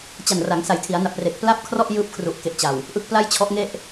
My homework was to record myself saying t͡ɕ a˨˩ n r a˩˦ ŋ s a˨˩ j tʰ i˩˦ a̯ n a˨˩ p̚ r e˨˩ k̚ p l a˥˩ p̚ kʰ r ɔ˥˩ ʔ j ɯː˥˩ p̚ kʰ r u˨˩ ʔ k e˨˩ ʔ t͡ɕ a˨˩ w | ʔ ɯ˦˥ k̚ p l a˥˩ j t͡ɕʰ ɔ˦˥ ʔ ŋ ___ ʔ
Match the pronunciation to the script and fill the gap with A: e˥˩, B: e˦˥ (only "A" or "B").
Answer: A